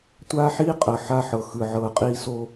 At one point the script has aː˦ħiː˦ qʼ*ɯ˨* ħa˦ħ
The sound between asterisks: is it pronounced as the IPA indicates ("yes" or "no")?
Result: no